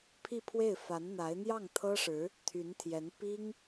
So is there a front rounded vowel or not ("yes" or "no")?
yes